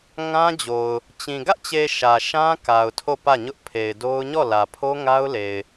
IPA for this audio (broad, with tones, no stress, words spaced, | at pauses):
ŋã˦d͡ʑo˨ʊ̯ | t͡ɕĩ˨ ɡä˦ʔt͡ɕe˨ ʃä˨ʃã˦ ka˨ʊ̯tʰo˦˨pä˦˨ ɲʊ˦ʔpʰe˨ɪ̯do˦ʊ̯ ɲɔ˦˨lä˨ pʰo˦ŋa˦ʊ̯le˨ɪ̯